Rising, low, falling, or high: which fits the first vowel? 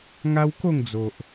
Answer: high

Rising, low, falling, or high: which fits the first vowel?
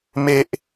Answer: high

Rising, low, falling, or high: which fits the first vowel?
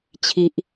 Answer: high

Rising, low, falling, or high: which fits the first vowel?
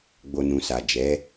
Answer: low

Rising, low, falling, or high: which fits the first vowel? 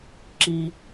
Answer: low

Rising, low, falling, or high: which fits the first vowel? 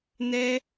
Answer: high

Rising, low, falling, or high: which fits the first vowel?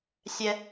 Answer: high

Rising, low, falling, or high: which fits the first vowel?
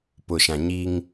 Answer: low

